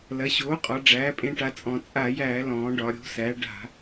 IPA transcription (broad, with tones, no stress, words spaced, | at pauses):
lɐ˩˧ɕoː˩˥qʼɒ˩˧ ɖ͡ʐæː˩˥pʼẽ˧ʈa˧t͡sʼɔ̃˧˩˧ t͡sʼa˧˩˧jæː˧˩˧lɔ̃ː˩˧ ɖɒ˩˧ɾʲo̤˩˥ sæ˩˥ ɖa̤˧˩˧